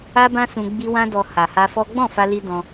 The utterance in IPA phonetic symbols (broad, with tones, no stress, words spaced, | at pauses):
a˦bã˦sũ˧ ɡ͡bi˧ wã˦dɔ˧ ha˨ha˧ fɔ˦ ɡ͡bɔ̃˦˨fa˧li˧ dɔ̃˧